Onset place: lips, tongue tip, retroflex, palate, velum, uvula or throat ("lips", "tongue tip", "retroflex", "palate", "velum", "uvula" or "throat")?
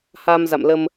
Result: throat